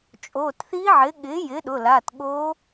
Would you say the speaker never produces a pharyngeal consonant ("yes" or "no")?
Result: no